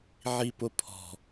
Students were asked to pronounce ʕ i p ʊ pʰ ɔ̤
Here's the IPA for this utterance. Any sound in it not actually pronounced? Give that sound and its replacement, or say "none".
none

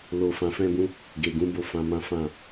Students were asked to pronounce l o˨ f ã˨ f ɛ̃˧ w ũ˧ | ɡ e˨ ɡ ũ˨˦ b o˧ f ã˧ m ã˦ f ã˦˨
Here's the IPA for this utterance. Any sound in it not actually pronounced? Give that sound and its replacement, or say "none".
w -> b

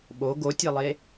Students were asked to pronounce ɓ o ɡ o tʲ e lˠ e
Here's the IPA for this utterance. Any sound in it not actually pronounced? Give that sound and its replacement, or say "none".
none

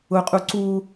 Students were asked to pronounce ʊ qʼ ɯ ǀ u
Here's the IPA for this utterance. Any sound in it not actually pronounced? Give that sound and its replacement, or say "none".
ɯ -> u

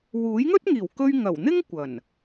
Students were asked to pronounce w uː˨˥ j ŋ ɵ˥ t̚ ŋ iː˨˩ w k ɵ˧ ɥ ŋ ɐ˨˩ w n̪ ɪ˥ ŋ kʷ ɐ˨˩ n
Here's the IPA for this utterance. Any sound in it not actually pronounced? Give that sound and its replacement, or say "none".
none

